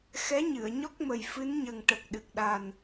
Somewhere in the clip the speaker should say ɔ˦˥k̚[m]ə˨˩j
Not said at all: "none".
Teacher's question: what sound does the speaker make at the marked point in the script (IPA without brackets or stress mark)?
m